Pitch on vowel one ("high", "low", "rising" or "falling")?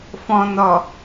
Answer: low